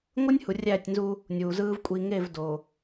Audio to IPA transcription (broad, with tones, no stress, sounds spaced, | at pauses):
ŋʷ ɯ˦ nʲ h u˨ rʲ æː˦˨ tʲ n z u˦ | nʲ uː˨ z ɯː˦ v kʷʼ i˨ ŋ e˦˨ v d o˨